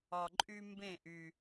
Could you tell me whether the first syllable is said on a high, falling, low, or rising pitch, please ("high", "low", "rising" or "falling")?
low